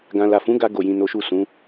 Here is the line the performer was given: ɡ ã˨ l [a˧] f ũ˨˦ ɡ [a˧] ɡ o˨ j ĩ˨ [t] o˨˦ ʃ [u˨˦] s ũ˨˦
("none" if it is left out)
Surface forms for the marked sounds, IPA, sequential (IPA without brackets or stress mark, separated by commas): a˨, a˧, n, u˦˨